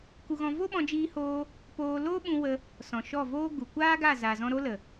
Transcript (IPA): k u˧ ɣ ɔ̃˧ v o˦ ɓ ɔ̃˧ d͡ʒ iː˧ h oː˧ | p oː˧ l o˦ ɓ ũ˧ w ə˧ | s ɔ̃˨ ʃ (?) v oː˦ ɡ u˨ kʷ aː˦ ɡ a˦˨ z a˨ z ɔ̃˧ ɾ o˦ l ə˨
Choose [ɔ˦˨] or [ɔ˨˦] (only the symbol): ɔ˦˨